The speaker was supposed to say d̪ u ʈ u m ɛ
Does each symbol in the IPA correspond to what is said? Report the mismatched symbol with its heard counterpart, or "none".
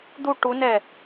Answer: m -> n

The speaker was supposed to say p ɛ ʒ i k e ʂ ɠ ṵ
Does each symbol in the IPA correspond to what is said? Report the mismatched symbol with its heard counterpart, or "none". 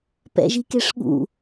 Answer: ɛ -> ɛ̰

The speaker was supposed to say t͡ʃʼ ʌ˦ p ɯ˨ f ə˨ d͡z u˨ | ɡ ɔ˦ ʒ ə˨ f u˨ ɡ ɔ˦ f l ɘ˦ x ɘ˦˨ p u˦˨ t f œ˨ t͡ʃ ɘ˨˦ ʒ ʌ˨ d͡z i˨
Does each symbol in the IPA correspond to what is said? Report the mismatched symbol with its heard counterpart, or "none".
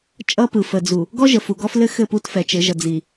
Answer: œ˨ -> ɛ˨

